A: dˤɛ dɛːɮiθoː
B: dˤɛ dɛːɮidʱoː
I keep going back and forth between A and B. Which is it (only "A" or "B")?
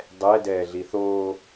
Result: A